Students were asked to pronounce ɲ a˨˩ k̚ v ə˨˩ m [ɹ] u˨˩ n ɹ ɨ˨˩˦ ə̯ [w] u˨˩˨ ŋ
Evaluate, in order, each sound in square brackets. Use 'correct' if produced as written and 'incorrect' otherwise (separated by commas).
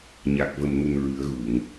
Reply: incorrect, incorrect